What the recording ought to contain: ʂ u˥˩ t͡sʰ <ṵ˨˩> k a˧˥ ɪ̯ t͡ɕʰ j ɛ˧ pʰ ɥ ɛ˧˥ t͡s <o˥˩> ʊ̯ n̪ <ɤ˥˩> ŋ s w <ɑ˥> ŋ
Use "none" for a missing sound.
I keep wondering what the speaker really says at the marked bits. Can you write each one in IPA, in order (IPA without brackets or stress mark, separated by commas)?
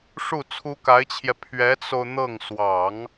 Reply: u˥, o˧, ɤ˥˩, ɑ˨˩˦